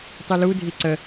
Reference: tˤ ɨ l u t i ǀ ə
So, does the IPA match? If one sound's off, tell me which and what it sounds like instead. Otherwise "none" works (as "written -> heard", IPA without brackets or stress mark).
t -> dʱ